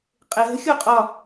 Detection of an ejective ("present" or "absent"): present